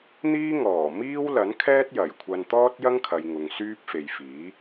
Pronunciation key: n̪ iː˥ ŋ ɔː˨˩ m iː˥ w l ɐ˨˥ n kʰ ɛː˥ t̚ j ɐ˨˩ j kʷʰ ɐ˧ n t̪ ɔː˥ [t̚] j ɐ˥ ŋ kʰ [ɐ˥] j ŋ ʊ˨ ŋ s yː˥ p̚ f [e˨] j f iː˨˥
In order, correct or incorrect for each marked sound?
correct, incorrect: ɐ˨, correct

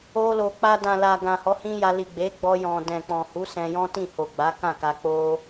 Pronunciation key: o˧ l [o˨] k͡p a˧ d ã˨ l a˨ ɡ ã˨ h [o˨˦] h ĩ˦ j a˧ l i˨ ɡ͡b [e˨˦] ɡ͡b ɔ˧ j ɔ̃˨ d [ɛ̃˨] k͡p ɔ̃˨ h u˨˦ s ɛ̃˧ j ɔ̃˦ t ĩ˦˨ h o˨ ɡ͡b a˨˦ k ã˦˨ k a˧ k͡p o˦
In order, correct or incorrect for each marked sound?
correct, incorrect: ɔ˨˦, correct, correct

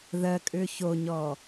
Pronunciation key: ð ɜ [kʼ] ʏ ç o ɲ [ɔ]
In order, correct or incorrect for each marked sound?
correct, correct

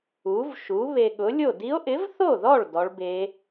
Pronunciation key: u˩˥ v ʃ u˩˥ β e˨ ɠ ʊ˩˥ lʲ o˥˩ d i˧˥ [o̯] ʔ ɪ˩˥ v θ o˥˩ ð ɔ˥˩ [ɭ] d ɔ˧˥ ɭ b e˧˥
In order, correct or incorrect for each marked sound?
correct, correct

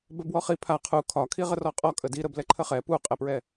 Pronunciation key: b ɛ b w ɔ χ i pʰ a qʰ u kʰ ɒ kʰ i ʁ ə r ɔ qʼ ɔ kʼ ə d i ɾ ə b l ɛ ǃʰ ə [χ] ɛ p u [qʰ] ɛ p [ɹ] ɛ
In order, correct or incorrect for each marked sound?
correct, incorrect: qʼ, correct

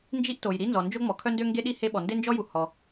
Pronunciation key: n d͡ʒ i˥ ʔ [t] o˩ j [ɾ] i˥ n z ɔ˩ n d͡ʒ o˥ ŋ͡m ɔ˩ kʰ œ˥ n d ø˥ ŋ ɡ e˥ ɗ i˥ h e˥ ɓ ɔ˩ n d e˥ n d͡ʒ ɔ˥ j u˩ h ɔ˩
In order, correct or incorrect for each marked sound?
correct, correct

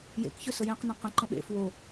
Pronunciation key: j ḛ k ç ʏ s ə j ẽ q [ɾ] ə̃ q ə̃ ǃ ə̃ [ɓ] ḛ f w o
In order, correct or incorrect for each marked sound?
incorrect: n, correct

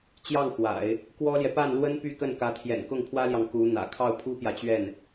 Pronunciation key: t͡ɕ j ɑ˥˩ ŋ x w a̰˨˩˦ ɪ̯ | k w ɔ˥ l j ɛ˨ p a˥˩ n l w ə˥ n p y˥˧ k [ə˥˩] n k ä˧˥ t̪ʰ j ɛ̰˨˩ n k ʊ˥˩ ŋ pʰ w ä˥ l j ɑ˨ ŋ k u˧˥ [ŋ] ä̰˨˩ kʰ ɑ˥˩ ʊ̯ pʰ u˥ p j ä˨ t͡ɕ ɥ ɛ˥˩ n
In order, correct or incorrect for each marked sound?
correct, incorrect: n̪

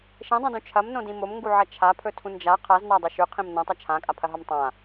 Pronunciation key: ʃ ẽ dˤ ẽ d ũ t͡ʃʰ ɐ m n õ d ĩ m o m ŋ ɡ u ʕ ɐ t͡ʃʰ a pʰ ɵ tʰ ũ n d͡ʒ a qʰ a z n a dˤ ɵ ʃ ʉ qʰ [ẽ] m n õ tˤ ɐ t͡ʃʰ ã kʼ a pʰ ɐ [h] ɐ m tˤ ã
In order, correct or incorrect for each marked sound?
incorrect: ĩ, incorrect: ɦ

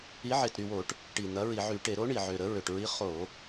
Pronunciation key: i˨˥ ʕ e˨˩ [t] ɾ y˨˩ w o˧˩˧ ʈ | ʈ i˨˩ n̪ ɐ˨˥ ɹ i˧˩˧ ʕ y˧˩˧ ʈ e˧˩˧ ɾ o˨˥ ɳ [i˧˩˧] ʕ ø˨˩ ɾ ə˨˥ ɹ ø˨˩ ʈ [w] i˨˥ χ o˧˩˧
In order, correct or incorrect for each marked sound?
correct, incorrect: i˨˩, incorrect: ɹ

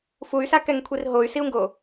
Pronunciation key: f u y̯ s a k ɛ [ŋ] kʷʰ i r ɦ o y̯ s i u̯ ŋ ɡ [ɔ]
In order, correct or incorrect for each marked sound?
correct, incorrect: o

